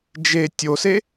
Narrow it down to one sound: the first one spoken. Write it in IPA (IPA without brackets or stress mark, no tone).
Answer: d͡ʒ